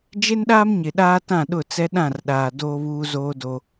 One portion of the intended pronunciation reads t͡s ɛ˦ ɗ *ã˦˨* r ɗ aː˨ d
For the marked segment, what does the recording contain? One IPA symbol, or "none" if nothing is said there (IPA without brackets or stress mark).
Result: ã˦˨